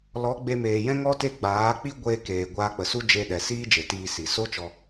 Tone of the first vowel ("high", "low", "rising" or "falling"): rising